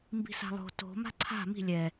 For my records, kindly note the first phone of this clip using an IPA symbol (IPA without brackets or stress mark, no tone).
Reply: m